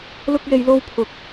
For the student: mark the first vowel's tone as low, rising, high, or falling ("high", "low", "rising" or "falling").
high